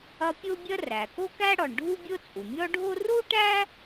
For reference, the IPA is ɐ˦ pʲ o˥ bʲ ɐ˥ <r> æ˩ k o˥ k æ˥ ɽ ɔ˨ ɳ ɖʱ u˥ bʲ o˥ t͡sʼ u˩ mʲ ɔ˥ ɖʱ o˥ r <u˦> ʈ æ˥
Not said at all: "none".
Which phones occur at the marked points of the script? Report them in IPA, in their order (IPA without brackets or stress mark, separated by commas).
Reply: r, u˥